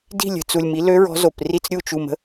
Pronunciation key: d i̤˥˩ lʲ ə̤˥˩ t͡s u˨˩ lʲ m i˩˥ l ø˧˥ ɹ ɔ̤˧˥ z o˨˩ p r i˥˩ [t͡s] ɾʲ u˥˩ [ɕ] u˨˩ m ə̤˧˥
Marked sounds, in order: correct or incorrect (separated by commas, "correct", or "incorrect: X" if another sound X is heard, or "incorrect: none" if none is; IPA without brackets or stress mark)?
correct, incorrect: t͡ʃ